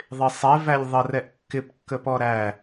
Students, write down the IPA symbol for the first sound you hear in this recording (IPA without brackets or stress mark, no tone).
ðˤ